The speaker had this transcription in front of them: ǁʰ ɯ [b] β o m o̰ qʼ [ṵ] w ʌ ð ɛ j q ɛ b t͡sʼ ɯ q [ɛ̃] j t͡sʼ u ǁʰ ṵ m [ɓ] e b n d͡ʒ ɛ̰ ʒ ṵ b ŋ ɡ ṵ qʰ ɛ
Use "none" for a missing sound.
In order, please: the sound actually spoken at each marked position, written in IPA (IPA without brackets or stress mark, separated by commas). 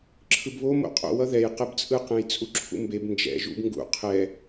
b, o̰, ɛ̃, b